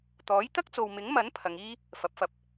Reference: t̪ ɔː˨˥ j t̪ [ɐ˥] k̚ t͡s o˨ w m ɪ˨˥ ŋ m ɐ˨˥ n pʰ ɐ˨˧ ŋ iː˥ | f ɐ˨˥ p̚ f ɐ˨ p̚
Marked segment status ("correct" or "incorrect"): correct